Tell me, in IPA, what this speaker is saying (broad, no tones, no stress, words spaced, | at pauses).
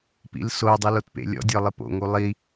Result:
pḭlsodˤi lotpḛlʲɔ̰dʲɔ lˠɪpo̰ŋu lˠi